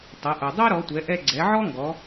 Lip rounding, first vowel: unrounded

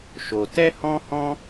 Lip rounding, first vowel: rounded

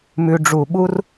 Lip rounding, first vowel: rounded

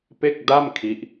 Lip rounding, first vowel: unrounded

